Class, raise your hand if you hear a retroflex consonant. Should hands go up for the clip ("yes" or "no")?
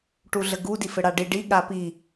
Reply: yes